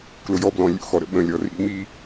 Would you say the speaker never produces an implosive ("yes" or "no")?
no